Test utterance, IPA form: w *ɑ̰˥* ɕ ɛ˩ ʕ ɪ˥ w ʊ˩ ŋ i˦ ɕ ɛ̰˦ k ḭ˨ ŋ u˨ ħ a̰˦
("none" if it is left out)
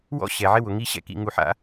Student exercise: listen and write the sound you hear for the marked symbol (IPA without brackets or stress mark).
ɔ̰˥